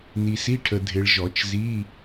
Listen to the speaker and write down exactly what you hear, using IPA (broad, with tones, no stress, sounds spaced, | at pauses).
n i˨ s i˧˥˧ ʈʰ ə˨ dʱ ɪ˨ ɭ ʒ ɔ˨˩˦ t͡ʃ z i˧˥˧